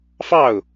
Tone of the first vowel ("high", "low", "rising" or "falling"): falling